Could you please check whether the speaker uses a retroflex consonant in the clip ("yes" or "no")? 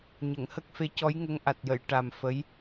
yes